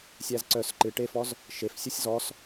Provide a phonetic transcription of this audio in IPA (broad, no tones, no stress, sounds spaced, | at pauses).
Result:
sʲ æ z ǀ œ s ǃ ɨ ʈ e f ɔ z | ʃ e f sʲ œ sʲ z ɔ s